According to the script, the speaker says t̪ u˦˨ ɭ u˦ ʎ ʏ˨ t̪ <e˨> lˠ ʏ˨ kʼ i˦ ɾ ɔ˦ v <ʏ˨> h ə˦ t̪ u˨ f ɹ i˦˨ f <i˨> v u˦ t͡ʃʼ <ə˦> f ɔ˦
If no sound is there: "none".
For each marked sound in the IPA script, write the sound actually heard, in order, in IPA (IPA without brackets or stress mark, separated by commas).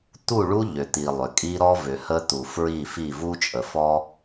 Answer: i˨, ʏ˨, i˦˨, ə˨